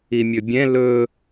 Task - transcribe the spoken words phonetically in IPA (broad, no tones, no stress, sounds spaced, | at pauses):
i mʲ ɵ bʲ ɛ̃ l ɵ